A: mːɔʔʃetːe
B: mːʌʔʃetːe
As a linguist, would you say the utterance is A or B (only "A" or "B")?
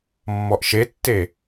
A